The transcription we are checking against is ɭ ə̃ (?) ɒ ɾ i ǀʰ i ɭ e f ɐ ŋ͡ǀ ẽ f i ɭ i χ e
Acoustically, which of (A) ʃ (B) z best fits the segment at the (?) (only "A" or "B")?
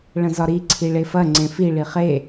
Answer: B